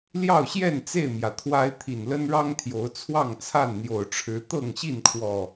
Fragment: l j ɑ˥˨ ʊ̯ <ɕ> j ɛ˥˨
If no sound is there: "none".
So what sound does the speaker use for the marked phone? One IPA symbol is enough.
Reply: ɕ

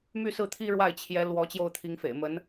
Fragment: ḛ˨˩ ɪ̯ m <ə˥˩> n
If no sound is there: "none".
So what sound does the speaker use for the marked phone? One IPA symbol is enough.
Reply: ə˧˥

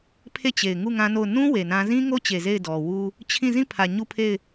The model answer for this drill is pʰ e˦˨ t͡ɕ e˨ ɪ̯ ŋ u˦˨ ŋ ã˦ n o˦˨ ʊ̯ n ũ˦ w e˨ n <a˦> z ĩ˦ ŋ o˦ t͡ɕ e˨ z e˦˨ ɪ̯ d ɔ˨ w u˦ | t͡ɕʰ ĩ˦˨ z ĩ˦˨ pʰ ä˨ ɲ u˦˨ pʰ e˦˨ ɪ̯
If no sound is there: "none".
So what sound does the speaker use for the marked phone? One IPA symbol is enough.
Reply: ã˦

